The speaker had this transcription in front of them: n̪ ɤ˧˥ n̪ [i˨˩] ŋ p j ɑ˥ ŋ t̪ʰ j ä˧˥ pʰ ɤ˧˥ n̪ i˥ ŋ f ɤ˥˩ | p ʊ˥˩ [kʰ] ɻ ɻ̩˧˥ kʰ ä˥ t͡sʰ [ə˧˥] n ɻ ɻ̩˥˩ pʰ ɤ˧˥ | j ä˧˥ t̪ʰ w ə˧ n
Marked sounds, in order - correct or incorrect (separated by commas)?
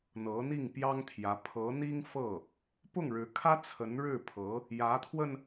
incorrect, incorrect, correct